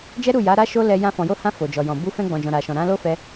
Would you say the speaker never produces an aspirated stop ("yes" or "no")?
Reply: yes